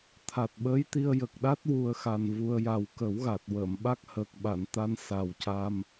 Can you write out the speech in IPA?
t̪ʰ a˨˩ t̚ ɓ əː˧˥ j t̪ i˧ ə̯ j ə˨˩ k̚ ɗ a˦˥ t̚ w u˧ ə̯ x a˨˩ n v u˧ ə̯ j a˨˩ w k ə˨˩˦ w ɣ a˨˩ t̚ w əː˨˩˨ m ɓ a˦˥ k̚ h əː˨˩ k̚ ɓ a˨˩˨ n t̪ a˧ n s a˨˩ w c a˧ m

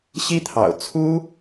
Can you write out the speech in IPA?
ɕ i˥ t̪ʰ ɑ̰˨˩ ʊ̯ t͡sʰ u˥

